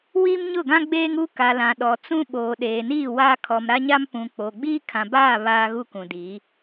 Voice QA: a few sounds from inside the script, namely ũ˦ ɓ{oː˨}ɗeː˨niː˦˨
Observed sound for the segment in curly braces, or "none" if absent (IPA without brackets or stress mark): oː˨